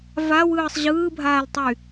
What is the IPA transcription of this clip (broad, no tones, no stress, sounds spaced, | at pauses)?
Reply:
v a w ɯː sˤ ʑ ɯː bʱ aː l tˤ y